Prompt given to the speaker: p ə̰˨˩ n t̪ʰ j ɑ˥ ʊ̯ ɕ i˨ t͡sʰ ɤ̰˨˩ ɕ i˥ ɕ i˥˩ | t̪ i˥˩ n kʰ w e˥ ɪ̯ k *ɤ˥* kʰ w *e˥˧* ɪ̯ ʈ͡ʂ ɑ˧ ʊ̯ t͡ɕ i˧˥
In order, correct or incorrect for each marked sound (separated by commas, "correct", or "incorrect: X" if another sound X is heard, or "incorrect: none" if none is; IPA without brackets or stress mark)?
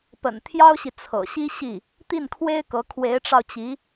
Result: incorrect: ɤ˧˥, incorrect: e˧˥